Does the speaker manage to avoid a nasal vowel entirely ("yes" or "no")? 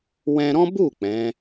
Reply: no